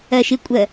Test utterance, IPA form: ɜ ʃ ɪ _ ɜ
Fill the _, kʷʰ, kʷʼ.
kʷʼ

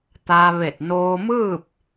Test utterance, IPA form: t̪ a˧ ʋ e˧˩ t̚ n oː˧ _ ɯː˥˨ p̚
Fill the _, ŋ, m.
m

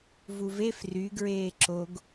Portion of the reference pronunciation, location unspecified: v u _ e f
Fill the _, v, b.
v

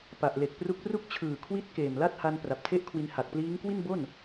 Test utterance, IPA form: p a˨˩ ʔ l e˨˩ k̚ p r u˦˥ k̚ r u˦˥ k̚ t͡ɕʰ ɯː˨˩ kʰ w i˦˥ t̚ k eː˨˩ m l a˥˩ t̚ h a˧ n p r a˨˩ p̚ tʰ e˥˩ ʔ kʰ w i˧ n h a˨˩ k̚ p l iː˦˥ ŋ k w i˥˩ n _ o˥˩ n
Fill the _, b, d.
b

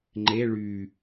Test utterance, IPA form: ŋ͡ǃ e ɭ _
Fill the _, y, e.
y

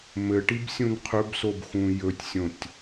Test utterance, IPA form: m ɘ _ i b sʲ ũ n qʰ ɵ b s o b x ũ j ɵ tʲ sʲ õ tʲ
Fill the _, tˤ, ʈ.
ʈ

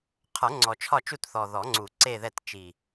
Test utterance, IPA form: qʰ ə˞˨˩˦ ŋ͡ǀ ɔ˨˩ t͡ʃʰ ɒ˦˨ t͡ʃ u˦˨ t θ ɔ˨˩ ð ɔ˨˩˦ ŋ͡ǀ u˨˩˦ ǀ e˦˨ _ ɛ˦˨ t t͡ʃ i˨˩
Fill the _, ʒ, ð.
ð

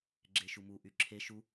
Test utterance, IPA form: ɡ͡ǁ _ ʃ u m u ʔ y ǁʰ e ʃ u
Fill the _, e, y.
e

